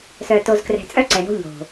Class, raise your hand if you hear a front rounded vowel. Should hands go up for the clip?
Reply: yes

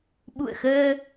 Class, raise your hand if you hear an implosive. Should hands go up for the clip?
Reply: yes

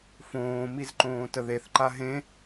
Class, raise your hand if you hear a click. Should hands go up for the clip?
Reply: yes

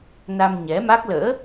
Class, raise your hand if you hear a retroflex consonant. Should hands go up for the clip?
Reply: no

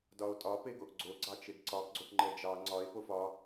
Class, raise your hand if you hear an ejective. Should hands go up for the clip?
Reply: yes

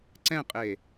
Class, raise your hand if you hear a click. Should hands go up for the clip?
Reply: yes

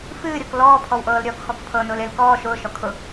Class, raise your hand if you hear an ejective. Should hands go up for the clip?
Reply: no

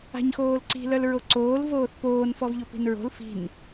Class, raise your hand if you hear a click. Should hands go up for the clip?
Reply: yes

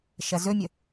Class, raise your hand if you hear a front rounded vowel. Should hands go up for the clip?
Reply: no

